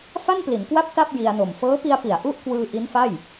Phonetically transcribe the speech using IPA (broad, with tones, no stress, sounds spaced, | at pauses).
f a˥˩ n p l i˩˦ n k w a˥˩ p̚ t a˥˩ p̚ j i˧ a̯ n o˨˩ m f ɤː˦˥ p i˧ a̯ p i˩˦ a̯ ʔ u˥˩ ʔ k w ɯː˧ ʔ i˦˥ n f a˥˩ j